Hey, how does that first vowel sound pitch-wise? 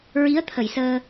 rising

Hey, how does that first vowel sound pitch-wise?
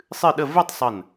falling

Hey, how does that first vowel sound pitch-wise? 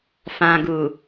low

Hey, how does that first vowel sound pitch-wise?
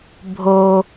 low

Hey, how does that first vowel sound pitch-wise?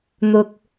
low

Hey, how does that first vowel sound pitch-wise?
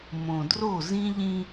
low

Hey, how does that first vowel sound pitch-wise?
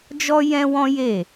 high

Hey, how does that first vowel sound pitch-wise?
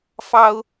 high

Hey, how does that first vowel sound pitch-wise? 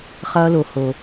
low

